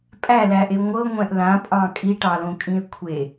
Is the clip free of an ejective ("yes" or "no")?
no